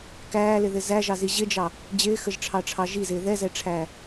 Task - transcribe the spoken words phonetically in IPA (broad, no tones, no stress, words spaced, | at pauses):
kæːlɪðɪ zæʒɑzi ʑɪd͡ʒɑ | d͡ʑɪːxəʒʈ͡ʂʰɑʈ͡ʂʰɑ ʒizɪː ðɛzɛʈ͡ʂʰæː